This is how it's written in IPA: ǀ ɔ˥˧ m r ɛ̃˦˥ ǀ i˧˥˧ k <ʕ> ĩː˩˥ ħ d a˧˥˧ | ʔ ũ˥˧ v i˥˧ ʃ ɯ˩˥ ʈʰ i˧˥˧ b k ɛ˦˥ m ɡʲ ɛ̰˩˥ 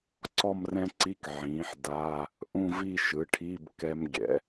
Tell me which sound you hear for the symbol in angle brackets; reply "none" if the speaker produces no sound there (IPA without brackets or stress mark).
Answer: ʕ